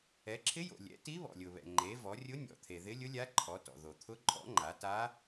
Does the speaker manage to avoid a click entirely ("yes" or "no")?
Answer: no